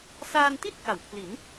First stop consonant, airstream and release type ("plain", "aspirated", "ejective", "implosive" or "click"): plain